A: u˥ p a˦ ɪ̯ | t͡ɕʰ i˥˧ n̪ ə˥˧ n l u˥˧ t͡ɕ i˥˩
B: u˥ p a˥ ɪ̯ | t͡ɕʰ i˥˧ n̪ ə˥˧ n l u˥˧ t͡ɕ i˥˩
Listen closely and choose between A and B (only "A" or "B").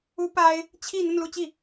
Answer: B